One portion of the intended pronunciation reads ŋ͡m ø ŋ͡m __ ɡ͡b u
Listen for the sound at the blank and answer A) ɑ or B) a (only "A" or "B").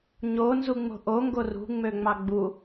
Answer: A